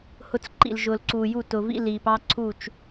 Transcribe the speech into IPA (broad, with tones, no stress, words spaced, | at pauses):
hʊ˦t͡s ǃḭ˨lʒʊː˨lǀuː˨ju˦˨ tʊ˨vḭ˦ liː˨pɑ˦ǀʰuː˦˨t͡ʃ